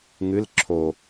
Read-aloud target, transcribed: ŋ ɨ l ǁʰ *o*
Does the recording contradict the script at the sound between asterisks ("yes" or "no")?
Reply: no